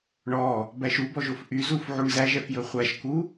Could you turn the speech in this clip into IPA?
ɳ ɔ | b æ ʃ u b ɔ ʒ o f ʔ y z u f ʕ u ɳ z æ ʒ ɛ f j ɵ χʷ æ ʃ k u

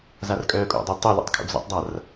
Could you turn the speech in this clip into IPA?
z a r kʼ œː kʼ o̰ dˤ u tˤ u l ṵ tˤ kʰ ṵ b z a̰ tˤ dˤ a r

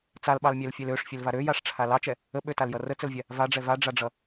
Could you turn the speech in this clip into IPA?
t͡s a l ɓ ɑ l mʲ ɛ l fʲ ɛ l ø ʂ fʲ ø l v a ɾ ø j a ʂ ʈ͡ʂʰ a l ɑ t͡ʃ ɛ | ə ɓ ø t a l j ʌ r ə t͡s ə l vʲ a | v a ɖ͡ʐ ɛ v a ɖ͡ʐ a ɖ͡ʐ ʌ

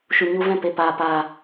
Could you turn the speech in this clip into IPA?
ʃ u˨ ɲ u˧ v ɛ̃˦˨ p e˨ p aː˨ p aː˨

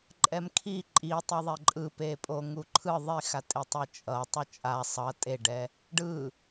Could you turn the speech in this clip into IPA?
ǃʼ ɛ m kʰ i ǃʼ i tˤ i ðˤ e ǃʼ ɯ p e pʼ o ŋ u ǃʰ ɯ ðˤ i x a tʼ e tˤ ɯ t͡ʃʼ ʌ tˤ ɯ t͡ʃʼ a sˤ ʌ tʼ e ɖ ɛ | ɖ ɯ

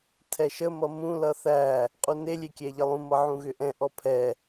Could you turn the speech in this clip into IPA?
tʰ ɛ ʃ ə m ʌ m ũ l ʌ θ æ | qʼ u n e lʲ e kʲ æ ʎ ə lˠ ũ m ʌ ʕ ũ ɣ ʏ ʔ ɛ̃ ʔ ɔ pʰ ɛ

